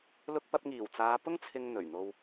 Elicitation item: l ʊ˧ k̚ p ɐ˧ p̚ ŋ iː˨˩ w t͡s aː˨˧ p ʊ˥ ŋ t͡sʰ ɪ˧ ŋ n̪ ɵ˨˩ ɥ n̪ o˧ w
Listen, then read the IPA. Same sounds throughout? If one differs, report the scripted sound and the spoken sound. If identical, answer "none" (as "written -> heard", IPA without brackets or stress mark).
none